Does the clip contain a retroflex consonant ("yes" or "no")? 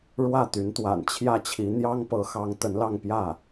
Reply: yes